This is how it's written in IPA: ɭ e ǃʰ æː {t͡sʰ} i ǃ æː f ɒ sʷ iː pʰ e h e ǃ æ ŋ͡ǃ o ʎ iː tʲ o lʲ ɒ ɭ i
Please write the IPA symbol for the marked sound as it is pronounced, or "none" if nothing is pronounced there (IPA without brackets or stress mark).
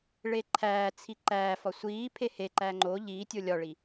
t͡sʰ